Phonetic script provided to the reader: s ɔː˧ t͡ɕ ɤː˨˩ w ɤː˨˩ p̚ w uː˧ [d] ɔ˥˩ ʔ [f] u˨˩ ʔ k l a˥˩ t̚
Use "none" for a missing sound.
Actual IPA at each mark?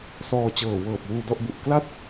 d, b

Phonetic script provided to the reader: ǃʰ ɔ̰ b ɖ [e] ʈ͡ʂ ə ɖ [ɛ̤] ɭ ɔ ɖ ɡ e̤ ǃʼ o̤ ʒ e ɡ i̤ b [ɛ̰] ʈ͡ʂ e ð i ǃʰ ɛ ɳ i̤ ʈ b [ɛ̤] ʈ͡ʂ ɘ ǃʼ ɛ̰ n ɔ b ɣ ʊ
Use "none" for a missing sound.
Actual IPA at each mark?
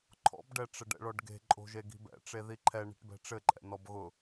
ɛ, ɛ̰, ɛ̰, ɛ̤

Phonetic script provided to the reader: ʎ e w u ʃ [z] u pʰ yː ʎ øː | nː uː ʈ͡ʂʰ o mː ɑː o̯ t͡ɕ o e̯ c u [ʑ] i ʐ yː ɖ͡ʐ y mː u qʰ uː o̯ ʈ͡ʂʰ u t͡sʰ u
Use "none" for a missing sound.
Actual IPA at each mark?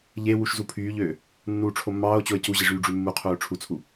z, ʑ

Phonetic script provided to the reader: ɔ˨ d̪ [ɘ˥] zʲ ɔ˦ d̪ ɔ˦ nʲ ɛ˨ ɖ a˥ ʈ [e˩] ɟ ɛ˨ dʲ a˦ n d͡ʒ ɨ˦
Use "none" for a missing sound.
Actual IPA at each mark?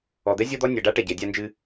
ɛ˥, ɛ˩

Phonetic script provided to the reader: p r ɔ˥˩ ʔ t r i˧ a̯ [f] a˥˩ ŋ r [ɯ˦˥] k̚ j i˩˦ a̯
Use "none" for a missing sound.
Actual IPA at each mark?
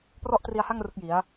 h, ɯ˦˥

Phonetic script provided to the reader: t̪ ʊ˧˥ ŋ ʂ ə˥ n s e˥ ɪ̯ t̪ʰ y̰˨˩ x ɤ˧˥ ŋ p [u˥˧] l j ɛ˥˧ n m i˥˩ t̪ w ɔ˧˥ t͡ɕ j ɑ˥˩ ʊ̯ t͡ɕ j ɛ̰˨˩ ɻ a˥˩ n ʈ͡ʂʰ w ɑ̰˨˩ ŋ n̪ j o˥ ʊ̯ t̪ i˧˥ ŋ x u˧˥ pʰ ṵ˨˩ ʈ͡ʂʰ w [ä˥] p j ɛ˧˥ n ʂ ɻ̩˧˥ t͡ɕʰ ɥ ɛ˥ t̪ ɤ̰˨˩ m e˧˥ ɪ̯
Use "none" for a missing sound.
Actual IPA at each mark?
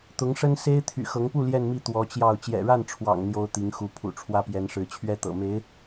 u˥˧, ä˥

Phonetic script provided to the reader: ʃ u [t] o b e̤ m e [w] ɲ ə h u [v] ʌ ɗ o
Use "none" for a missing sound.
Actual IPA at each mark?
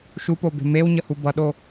p, w, b

